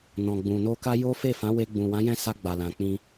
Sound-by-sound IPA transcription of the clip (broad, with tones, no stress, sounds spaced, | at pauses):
n ɔ̃˨ ɡ͡b ũ˨ n o˧ k a˦ j o˦ f e˦˨ f ã˨˦ w e˧ ɡ͡b ũ˨ w ã˨˦ j ɛ̃˦˨ s a˧ ɡ͡b a˨ l ã˨ k͡p ĩ˧